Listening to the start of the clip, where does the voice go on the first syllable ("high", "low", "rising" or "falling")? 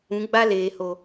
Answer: rising